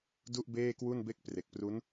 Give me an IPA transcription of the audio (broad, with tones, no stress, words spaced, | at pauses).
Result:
du˥˩ʔbeː˥˩kwu˥˩nbe˥˩k̚ pre˨˩k̚pru˦˥n